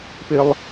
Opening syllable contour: high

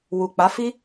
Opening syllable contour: low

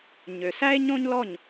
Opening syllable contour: low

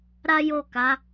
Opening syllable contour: high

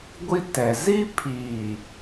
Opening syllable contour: high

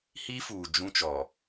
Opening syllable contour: high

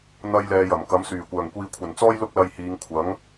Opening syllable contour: high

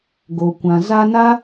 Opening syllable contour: low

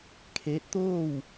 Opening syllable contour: rising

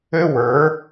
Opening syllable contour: high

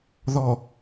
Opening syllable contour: low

